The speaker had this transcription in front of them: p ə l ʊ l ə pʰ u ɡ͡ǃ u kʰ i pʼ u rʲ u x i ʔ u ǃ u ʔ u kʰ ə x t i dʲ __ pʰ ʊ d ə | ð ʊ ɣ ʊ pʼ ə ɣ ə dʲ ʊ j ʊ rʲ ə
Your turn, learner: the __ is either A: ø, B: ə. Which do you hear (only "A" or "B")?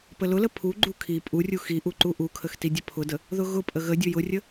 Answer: B